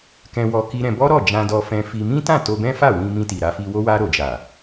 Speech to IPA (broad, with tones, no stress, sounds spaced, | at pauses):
k ɛ̃˧ w ɔ˧ k i˦ ɾ ɛ̃˧ b ɔ˦ ɾ ɔ˦˨ d͡ʒ ã˧ d ɔ˧ f ɛ̃˧ f i˧ m ĩ˦ t ã˦˨ t o˧ b ɛ̃˦ f a˦˨ w ĩ˧ m ĩ˧ t i˨ ɾ a˧ f i˧ w o˦ w a˧ ɾ o˨ d͡ʒ a˨